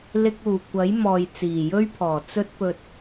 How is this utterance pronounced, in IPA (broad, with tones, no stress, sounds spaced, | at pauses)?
l ɪ˧ k̚ uː˨˩ kʷ ɐ˨˥ j m ɔː˨ j t͡s iː˨˩ j ɵ˥ ɥ pʰ ɔː˨˩ t͡s ɵ˧ t̚ p ɵ˨ t̚